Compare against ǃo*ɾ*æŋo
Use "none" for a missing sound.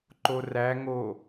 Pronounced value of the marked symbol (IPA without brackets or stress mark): r